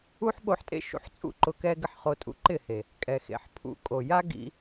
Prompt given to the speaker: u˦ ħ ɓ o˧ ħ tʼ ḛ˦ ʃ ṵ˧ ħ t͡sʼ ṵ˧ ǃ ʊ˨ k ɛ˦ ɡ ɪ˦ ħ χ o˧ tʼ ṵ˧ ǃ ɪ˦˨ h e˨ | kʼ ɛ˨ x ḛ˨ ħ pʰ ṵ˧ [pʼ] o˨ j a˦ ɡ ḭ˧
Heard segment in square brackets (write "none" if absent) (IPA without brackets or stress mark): kʼ